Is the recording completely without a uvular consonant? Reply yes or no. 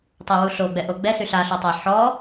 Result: yes